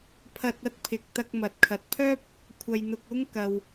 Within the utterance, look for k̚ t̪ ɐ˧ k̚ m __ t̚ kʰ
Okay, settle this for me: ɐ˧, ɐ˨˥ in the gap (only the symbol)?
ɐ˨˥